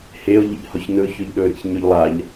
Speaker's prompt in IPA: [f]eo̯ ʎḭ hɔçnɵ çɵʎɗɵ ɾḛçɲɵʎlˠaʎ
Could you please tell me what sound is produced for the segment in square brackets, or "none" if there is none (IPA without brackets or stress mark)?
h